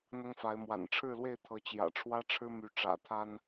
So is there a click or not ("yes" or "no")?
no